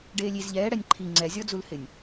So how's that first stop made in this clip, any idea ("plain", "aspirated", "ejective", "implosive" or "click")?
plain